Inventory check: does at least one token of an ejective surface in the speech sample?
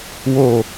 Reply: no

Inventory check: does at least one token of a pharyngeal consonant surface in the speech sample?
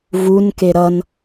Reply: no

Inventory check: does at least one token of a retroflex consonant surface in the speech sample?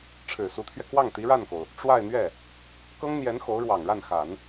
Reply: yes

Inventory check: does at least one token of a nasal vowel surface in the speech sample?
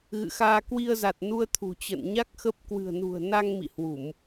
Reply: no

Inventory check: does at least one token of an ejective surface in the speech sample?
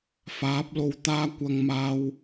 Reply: no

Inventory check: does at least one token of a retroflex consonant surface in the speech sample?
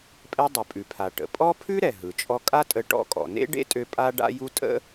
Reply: yes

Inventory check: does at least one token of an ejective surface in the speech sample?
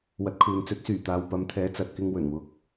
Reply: no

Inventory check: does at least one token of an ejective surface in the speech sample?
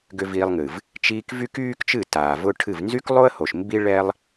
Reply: no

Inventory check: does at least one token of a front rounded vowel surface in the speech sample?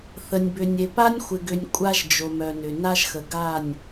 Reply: yes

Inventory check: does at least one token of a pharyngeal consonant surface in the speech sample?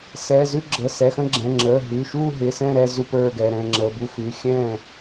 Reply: no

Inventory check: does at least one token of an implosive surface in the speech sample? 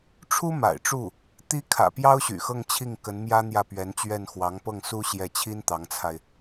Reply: no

